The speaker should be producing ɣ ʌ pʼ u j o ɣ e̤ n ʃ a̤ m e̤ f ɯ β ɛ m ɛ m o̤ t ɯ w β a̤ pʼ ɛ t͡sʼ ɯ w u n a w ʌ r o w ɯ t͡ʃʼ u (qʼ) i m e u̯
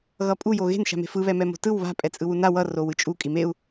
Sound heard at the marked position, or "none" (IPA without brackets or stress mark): kʼ